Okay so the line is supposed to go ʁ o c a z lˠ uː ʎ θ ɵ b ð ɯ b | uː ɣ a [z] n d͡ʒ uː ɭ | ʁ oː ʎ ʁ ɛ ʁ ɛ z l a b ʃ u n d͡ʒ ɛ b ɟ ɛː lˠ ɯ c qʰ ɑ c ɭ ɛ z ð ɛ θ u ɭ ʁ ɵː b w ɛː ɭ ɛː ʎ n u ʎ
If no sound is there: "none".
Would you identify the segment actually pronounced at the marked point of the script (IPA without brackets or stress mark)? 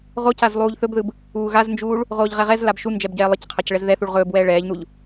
z